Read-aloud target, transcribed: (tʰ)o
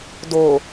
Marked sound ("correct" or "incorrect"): incorrect